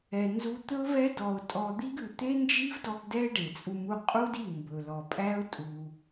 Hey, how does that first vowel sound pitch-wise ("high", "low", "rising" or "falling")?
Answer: low